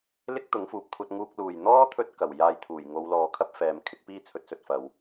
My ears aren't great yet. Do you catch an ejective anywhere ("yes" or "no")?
no